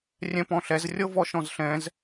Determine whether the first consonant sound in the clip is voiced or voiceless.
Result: voiced